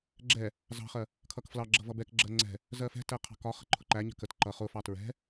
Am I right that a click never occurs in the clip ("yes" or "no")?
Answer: no